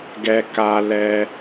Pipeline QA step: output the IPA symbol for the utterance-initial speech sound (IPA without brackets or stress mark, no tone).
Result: ɡ